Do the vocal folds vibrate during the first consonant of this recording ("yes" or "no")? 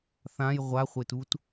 no